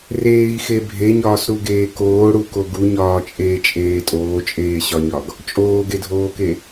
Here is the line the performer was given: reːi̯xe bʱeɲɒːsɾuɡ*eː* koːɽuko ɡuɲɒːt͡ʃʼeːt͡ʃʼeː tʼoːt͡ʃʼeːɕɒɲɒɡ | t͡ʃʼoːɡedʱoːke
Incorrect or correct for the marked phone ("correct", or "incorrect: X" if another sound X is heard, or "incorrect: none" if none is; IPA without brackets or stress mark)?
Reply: correct